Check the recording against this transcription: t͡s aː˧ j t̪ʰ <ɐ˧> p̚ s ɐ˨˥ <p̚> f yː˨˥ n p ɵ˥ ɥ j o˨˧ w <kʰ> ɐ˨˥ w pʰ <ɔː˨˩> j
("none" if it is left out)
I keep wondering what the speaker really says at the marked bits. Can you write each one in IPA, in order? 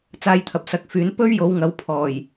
ɐ˨, k̚, ŋ, ɔː˨˩

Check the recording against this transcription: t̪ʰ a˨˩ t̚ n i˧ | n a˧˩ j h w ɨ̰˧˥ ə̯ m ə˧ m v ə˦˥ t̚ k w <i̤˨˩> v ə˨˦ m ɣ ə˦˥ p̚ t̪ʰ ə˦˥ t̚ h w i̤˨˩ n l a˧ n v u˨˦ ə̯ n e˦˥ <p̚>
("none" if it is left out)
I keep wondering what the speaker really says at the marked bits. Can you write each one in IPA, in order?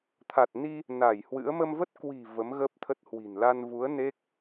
i̤˨˩, k̚

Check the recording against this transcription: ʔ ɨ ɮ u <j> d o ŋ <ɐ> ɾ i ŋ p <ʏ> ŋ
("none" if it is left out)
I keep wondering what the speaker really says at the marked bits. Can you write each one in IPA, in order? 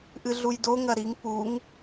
j, ɐ, u

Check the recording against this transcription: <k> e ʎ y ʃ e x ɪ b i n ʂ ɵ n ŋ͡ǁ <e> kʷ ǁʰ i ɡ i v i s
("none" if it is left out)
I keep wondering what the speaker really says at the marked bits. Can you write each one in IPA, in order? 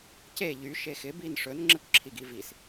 c, e

